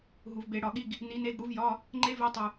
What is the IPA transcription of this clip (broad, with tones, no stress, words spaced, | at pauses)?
ɦu˨˩˦vbe˨˩˦ɽɒ˨˩˦ɠi˧˥˧ɡ | ni˨˥ne˧˥˧ɡ ɽu˨˥vjɒ˧˥˧ | ŋ͡ǃe˥ve˧˥˧tˤu˨˩